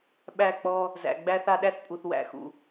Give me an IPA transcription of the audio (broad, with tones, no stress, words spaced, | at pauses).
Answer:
ɓæ˦˨k͡pɔ˦ | zæ̰˨ɡ͡bæ˦θa˦ ɗæ˦θpʼu˨θ wæ̰˨xṵ˨